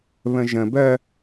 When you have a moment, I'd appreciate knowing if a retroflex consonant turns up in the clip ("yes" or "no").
no